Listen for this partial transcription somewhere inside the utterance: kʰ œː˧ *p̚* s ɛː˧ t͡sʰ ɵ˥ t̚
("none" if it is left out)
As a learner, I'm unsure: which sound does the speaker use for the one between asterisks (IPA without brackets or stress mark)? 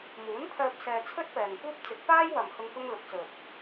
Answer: p̚